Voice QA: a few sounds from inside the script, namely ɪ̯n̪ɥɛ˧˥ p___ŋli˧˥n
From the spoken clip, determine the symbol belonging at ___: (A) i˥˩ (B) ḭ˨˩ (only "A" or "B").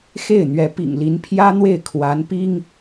B